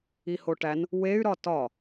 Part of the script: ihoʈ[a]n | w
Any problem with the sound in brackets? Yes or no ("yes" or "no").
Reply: yes